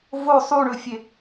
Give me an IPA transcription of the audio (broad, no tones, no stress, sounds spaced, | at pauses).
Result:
v o sˤ u ɳ ɵ fʲ e